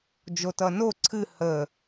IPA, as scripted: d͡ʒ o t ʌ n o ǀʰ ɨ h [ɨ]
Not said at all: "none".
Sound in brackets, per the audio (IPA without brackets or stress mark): ə